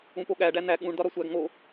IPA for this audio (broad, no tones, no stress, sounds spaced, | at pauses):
ũ p o ɠ æ ɖ æ n̪ æ ɠ ũ ɳ d ɒ ɾ ɒ sʷ æ ɡ ŋ o